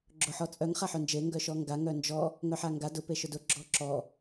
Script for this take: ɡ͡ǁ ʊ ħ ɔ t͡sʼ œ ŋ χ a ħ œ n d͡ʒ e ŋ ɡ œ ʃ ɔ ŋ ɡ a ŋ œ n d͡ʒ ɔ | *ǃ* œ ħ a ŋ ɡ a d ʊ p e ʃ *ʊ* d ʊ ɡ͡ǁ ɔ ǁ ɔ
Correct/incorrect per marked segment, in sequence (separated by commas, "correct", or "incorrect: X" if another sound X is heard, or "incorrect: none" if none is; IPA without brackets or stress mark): incorrect: ŋ, correct